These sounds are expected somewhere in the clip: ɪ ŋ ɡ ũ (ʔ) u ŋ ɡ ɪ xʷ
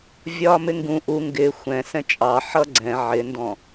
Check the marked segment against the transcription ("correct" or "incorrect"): correct